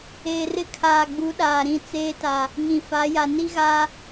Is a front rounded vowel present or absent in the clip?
absent